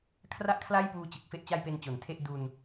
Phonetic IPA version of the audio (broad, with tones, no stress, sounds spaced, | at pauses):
kʰ r a˥˩ ʔ kʰ l a˥˩ j p uː˧ t͡ɕ ɯ˨˩ k̚ f e˥˩ ʔ t͡ɕ a˧ j p e˧ n t͡ɕ o˨˩ n tʰ e˥˩ ʔ d u˧ n